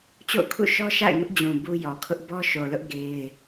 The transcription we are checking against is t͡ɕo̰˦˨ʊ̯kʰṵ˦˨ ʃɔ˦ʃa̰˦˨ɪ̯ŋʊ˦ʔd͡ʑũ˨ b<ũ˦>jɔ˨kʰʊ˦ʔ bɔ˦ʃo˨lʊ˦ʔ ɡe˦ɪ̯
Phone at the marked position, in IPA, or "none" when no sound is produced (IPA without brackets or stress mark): u˦